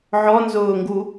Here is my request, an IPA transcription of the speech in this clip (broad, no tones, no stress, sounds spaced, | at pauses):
ʕ ɔ n z ʊː ŋ ɡ u